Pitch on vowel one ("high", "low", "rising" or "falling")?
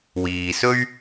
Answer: low